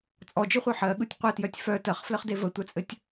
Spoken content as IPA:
t͡sʼ ɔ d͡ʒ ɯ χʷ œ ħ ɜ ɠ ɯ tʲ qʷ ɘ t j œ tʲ f œ t ɜ χ f l ə χ d e v ə tʷ œ t͡sʼ ɘ tʲ

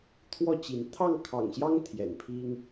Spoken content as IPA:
t̪ʰ w ɔ˥˨ t͡ɕ i˨˦ n t̪ʰ ɑ˥˨ ŋ kʰ ɑ̰˨˩ ŋ ɕ j ɑ˦ ŋ t̪ʰ j ɛ̰˨˩ n pʰ i˦ ŋ

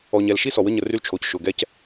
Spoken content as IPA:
ɔ˨ ɲ ɛ˨ l ʃ i˦ s ɔ˨ w ə˦ ɲ ə˨ r y˦ l t͡ʃʰ o˨ c ʃ ʊ˨ ɡ ɛ˦ c

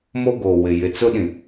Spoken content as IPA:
m o˦ ɡ oː˨ w ɪ˨ j ɪ˨ t͡s ʊ˦ ɗ ĩ˨

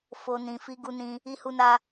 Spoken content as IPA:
f o˨ n ĩ˨ f i˧ ɡ u˧ n ĩ˧ | i˧ h u˧ n a˧

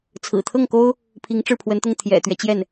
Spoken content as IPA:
t͡sʰ ɹ̩˨˩ t̪ʰ ɤ˥˩ ŋ k o˥ ʊ̯ | pʰ i˧˥ ŋ ʈ͡ʂ ɻ̩˥˩ pʰ w ə˧˥ n t̪ ʊ˥˩ ŋ t̪ʰ j ɛ̰˨˩ t̪ ɥ ɛ˦ t͡ɕ j ɛ˥˩ n

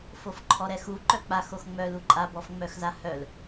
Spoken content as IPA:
f o f ǃʰ ɔ ɾ ɛ x u ǃ œ k͡p a x o x ŋ͡m œ l u ǃʼ a b ɔ f ŋ͡m œ x z a h œ l

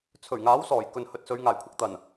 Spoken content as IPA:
t͡sʰ ɵ˨˩ ɥ ŋ aː˨˥ w s ɔː˨˩ j k ɵ˨ n h ɵ˨ t̚ s ɵ˨˧ ɥ ŋ aː˨˩ j kʷʰ ɐ˧ k̚ t̪ ɐ˨˩ n

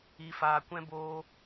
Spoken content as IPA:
i˧ f aː˧ kʷ ɛ̃˦ b oː˦

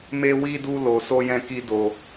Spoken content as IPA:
m e˦ w i˦ d u˦ l o˧ s o˦ j ɛ̃˦ k i˦ d o˧

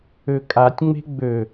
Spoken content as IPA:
ø kʼ a tʲ ŋ͡m e̤ ɡ͡b ø

